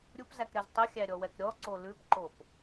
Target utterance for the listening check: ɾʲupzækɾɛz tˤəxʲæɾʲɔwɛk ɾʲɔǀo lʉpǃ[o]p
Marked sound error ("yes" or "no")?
no